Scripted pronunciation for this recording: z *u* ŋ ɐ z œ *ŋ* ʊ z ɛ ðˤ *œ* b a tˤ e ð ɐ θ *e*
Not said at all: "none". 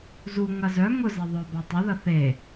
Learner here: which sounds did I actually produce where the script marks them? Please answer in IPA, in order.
u, ŋ, œ, e

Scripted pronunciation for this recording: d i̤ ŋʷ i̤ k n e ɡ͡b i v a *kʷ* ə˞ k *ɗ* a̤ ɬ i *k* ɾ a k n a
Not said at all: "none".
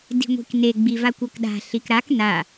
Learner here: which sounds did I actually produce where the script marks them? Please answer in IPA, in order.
kʷ, ɗ, k

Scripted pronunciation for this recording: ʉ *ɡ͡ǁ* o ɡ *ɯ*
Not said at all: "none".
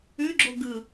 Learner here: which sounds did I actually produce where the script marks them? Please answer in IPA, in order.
ɡ͡ǁ, ɯ

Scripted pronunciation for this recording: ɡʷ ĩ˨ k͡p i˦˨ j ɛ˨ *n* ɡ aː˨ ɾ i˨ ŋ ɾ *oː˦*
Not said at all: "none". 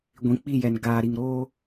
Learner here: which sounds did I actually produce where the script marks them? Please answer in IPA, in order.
n, oː˦

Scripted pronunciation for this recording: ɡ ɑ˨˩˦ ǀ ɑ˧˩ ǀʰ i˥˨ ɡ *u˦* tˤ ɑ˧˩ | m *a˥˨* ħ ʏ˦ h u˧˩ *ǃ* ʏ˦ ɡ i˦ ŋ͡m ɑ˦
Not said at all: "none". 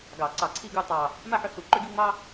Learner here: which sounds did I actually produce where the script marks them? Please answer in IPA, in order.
u˥˨, a˥˨, ǃ

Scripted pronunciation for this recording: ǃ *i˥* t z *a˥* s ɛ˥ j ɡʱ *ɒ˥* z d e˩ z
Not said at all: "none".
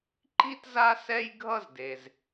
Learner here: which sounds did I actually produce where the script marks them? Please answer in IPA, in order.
i˥, a˥, ʌ˥

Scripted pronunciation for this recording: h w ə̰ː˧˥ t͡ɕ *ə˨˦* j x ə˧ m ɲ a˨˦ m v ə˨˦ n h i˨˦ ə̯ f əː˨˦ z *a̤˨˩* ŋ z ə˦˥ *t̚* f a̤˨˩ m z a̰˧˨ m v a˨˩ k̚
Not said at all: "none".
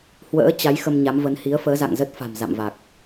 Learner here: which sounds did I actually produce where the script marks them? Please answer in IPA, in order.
a˨˦, a̰˧˨, t̚

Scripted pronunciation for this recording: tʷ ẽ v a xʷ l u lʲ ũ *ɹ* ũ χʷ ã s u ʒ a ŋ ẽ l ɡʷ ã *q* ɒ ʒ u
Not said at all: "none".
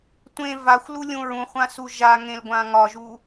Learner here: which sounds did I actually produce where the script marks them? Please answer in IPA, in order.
ɹ, ŋ

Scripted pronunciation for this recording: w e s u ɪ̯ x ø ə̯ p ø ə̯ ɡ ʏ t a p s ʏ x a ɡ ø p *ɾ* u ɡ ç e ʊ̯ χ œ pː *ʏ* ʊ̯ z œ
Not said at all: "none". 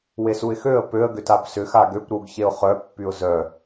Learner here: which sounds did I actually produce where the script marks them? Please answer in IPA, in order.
ɾ, y

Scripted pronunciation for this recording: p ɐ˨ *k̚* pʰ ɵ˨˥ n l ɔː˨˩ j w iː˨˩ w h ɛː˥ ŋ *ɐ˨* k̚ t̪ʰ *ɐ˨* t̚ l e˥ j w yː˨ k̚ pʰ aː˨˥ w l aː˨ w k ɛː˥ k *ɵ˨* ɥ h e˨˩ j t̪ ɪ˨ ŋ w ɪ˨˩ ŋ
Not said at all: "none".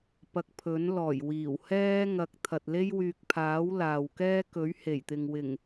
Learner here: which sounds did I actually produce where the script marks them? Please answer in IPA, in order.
k̚, ɐ˨, ɐ˨, ɵ˨˥

